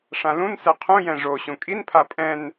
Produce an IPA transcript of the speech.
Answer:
ʂ ã l ũ n s ɛ qʰ ũ j ɛ̃ ʐ o ɕ ũ kʼ i n pʰ a pʼ ɛ̃ n

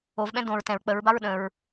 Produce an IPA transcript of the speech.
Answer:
o v ɓ ɛ̃ d õ ɹ t ɛ̃ ɹ k͡p ə ɹ b a ɹ ɗ ə̃ ɹ

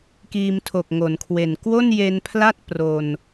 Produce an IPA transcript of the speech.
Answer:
k iː˧ m tʰ o˨˩ k̚ ŋ o˩˦ n kʰ w e˨˩ n k w o˥˩ n j e˧ n pʰ l a˥˩ t̚ p r o˧ n

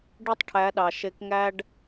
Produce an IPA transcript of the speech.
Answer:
ɖ ɯ˦ tˤ ʈʰ æ˨˦ ɗ ɑ˨ ʃ e˧ k ŋ æ˦ ɖ

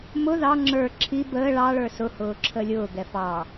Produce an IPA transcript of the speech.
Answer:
m ʊ ð ɑ ŋ͡ǁ ə˞ ǁʰ i b əː ɭ ɑ ɭ ə˞ s ʊ h ʊː ǁʰ ə lʲ ʊː ɡ ɛ f ɑ

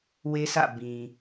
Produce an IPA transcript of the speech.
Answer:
w e˦ s ä̰˦˨ b ĩ˨

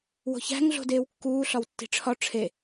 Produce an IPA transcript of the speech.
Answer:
w o̤ ç æ̤ ŋ ɮ o̤ d eː w kː uː ɬ ɒ w tː i̤ ʈ͡ʂʰ ɒ ʈ͡ʂʰ e

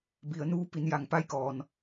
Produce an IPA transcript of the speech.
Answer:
b i˩˧ ə̯ n uː˧˥ p i˩˧ n j a˩ ŋ p a˥˨ j k ɔː˩ n

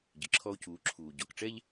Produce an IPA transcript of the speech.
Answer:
ɟ ɨ˩ ǁʰ ɔ˧ o̯ c uː˩˥ ǁʰ uː˩ ɟ ɔ˩ k ʈ͡ʂ ɛ˥ ʎ

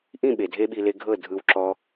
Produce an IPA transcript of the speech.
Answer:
ʔ ĩ˦˨ ɓ e˨ dʱ e˦ ɓ i˧ l e˧ ɡʱ ɤ˦˨ dʱ ɯ˧ w ǁ ɔ˦

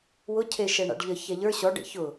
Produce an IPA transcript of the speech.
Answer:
w ʊ cʰ e ʃ ɛ ɳ a̰ ɖ ʎ ə ç ɛ ʎ ə˞ ɕ ɔ ɖ ḛ ç ʊ

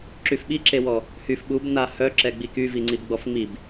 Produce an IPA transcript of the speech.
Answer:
ǁ y f ɓ i ǁ e w ɔ | h y f ɓ u b n a h œ ǁ ɛ ɡ͡b i k y v i ŋ͡ǀ i b ɡ͡b ɔ f ŋ͡m i b

